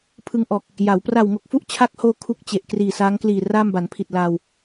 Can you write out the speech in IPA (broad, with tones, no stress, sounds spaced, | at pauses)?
pʰ ɯ˧ ŋ ʔ ɔː˨˩ k̚ | j a˩˦ w p r a˨˩ w ŋ o˨˩ k̚ f u˥˩ ʔ t͡ɕʰ a˦˥ k̚ h oː˧ kʰ u˥˩ k̚ t͡ɕ e˨˩ ʔ k r iː˨˩ s aː˦˥ ŋ k l iː˨˩ r aː˥˩ m b a˩˦ n pʰ i˨˩ t̚ l aː˧ w